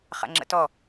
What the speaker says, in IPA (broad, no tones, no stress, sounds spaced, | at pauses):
χ a̰ ŋ͡ǁ ə̰ t ɔ